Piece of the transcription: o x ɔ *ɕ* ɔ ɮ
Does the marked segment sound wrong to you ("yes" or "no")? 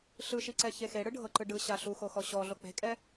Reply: no